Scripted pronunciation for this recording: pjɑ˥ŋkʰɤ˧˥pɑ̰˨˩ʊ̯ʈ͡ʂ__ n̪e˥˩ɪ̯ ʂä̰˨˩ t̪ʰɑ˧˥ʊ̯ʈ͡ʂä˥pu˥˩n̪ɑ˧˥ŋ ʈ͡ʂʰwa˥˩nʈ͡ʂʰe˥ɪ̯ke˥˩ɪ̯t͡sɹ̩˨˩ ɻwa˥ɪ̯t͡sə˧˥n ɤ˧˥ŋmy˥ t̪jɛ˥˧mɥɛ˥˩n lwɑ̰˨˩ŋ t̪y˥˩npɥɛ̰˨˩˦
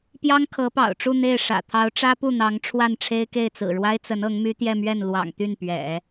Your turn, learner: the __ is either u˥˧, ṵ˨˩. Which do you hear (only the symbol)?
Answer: u˥˧